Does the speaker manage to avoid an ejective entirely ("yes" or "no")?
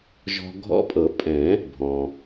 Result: no